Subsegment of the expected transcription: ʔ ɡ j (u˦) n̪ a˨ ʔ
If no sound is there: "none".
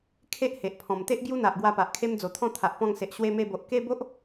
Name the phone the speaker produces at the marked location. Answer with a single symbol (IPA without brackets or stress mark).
u˦